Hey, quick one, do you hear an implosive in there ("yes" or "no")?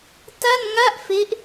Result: no